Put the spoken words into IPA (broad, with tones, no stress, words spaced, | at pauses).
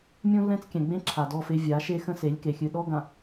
mʲũ˦lːɛ̃˦t͡skʲɛ̃˨ɡ͡bẽ˦ ǁʰa˨dɔ˦˨fe˦ vʲa˨˦ ʃe˦ xə̃˦se˨˦lʲke˨ xʲɨ˨ ɗɔ˦ ɡã˨